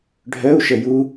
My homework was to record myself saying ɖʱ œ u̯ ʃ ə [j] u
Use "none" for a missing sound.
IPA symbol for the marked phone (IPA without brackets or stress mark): j